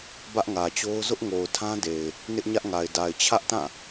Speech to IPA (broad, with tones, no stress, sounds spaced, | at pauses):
b ä˦ ʔ ŋ ä˨ t͡ɕ o˦ ʊ̯ z ʊ˦ ʔ ŋ o˨ ʊ̯ tʰ ã˦ d e˨ ɪ̯ | n ɪ˦ ʔ ɲ ä˦ ʔ ŋ a˨ ɪ̯ d a˨ ɪ̯ t͡ɕʰ ä˦ ʔ t ã˦˨